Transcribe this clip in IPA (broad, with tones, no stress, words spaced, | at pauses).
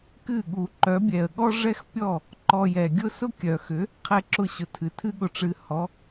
kɨ˦˨ɠu˨ǃœ˨˦ bʲɛ˨ə̯ɠɔ˦ ʐɛ˦xpʲɔ˦˨ | ǃɔ˧jɛ˨ɡʲʊ˦ sʊ˦kʲœ˨xʏ˨˦ | qʰɛ˧ǁʊ˧ɕʊ˨ tʰɨ˨tʰɨ˦ɠʊ˧ʈ͡ʂɨ˧ hɔ˨˦